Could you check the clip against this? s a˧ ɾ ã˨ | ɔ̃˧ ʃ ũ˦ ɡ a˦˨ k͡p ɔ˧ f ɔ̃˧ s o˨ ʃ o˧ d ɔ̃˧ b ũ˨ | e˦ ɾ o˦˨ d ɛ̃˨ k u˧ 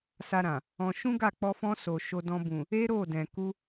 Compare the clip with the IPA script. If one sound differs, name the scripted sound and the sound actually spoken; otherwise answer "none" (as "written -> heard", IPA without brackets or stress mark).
none